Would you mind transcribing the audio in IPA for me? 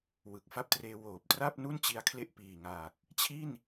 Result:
wɯ˨˩k̚fa˦˥p̚treː˧ woː˨˩p̚tra˥˩p̚ nu˥˩nt͡ɕi˧a̯kʰle˦˥ʔ piː˨˩ŋaː˨˩k̚ | t͡ɕʰi˥˩n

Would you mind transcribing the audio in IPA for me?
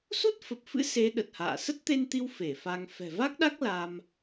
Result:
su˦˥t̚fə˨˩p̚fɨ̰˧˥ se˨˦ ɗə˨˩t̚ha̰ː˧˨ sə˦˥t̚t̪e˧nt̪i˧w fe˧˩fa˧ŋ fɛ̤˨˩va˦˥k̚ɗa˦˥k̚ la˧m

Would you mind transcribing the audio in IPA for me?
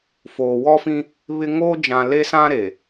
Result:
foː˨wɔ˦fĩ˦ | βɪ˦ ŋoː˦d͡ʒã˨le˦ sã˦ɾe˨

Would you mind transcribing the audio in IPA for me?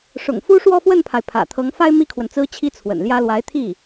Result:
ʂʊ̰˨˩ŋfu˥ ʂwɔ˥˧fwə˥˩npʰa˩ɪ̯ pʰä̰˨˩t̪ʰɤ˧˥ŋ fa˥ɪ̯ mi˥kʰwə˨nt͡sɹ̩˥ t͡ɕʰi˥t͡sʰwə̰˨˩nljä˥ lwa˧˥ɪ̯t̪ʰi˥˩

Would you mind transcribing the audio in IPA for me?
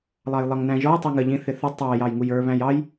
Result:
lˠɑjlˠʌŋnæ̃ʒɔj tˤiŋə ʎĩθɪθʊ tˤɑ jɑjŋujə˞ βæ̃jɑj

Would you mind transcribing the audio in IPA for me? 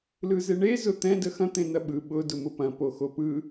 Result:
lɯzeɳe zʊt̪ɛ̃ dəxɐ̃ t̪ẽnɐɓɯ ɓʊ dʊmʊpɐ̃ poxopɯ

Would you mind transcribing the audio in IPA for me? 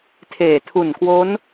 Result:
tʰeː˨˩tʰu˨˩nkwo˦˥n

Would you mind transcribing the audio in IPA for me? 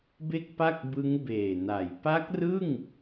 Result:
be˥˩k̚pa˥˩k̚bɯ˦˥ŋ beː˨˩na˩˦j pa˦˥k̚rɯ˥˩ŋ

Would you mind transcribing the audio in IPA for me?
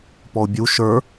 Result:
pɔʊ̯bʲu ʃə˞

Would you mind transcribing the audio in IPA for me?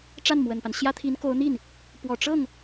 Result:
ʈ͡ʂa˥˩nmwə˨˩npa˦nɕjä˥ t̪ʰi˧˥nko˧˥ʊ̯n̪i˥˩n | pwɔ˨˩ʈ͡ʂɤ˥˩ŋ

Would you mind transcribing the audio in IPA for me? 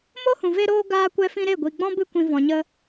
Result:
mo˦hũ˨ ve˧ɾoː˧ ɡaː˧kʷɛ˧fĩ˧ ɾe˦˨ɡʷi˨ɡ͡bɔ̃˦ bɨ˧kʷĩ˨ vɔ̃˨ɲə˧

